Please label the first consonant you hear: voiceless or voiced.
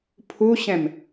voiceless